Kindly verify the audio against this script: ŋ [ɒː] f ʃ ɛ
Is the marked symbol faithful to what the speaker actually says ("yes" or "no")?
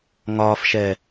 yes